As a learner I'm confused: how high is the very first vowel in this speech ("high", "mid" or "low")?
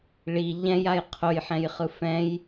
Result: high